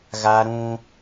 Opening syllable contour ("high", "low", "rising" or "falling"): high